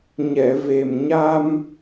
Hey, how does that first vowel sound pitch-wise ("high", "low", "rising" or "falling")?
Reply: low